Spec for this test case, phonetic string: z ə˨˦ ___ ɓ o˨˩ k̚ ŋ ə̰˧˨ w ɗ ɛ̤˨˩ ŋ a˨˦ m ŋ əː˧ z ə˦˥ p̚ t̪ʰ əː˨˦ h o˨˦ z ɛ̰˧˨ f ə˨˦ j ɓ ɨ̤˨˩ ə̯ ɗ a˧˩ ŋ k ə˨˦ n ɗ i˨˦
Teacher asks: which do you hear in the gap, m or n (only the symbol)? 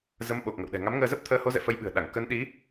m